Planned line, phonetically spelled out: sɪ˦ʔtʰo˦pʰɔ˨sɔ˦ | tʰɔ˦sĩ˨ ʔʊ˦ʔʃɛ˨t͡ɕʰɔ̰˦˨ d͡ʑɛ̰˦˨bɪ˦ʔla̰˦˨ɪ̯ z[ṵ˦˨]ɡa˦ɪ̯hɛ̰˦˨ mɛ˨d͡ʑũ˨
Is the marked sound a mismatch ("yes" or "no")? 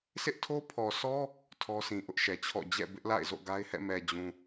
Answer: yes